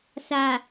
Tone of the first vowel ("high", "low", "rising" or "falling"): low